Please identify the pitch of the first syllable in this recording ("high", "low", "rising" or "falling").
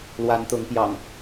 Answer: rising